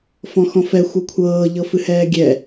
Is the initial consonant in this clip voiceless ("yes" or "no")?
yes